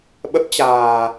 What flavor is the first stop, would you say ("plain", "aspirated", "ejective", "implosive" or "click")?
implosive